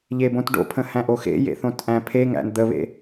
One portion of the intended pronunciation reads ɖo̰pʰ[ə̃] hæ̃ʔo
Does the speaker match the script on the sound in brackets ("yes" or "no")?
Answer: yes